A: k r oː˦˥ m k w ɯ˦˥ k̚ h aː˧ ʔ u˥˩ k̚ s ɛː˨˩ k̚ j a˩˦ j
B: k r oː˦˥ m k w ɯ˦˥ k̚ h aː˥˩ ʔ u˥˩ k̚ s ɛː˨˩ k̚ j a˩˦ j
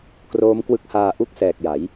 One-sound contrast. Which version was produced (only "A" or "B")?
A